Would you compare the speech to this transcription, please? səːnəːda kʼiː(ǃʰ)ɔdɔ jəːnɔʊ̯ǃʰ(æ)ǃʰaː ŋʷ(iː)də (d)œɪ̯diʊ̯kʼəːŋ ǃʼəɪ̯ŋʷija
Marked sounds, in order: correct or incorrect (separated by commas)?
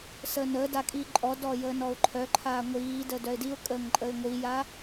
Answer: incorrect, incorrect, correct, correct